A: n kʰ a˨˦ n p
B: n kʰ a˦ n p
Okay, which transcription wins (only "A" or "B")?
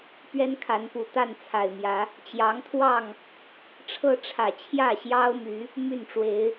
A